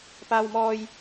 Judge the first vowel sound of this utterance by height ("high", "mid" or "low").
low